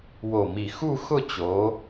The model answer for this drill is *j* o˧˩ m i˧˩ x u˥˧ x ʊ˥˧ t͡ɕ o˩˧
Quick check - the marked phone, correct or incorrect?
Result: incorrect